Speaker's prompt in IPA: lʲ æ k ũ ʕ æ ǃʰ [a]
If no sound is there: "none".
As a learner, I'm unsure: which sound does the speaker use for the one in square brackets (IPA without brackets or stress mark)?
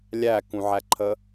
ə